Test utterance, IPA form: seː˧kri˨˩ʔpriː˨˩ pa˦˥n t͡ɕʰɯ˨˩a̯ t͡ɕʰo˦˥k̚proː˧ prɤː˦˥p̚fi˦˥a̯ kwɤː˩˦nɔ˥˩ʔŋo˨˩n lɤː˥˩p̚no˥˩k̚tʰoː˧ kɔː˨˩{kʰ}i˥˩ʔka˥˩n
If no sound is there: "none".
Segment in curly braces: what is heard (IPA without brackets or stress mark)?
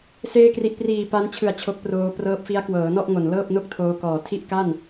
tʰ